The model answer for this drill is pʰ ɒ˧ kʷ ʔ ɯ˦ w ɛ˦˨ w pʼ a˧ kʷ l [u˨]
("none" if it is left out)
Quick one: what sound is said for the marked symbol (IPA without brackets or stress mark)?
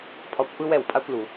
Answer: u˨